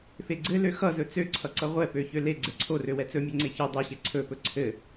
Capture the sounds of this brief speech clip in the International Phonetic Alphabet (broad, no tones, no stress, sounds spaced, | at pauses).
f e ɡ͡ǀ ɘ l ø x ʌ z ɵ t͡s ø ǀʰ ʌ ǀ ʌ ʁʷ ɛ p ø ç ø l e ɡ͡ǀ ɛ ǀʰ o r ø w ɛ t͡s ɵ mʲ ɛ ŋ͡ǀ e ç ɘ dˤ ɛ ɕ e ǀʰ ɵ p ɵ ǀʰ ɘ